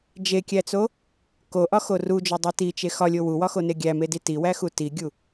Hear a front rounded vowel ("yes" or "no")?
no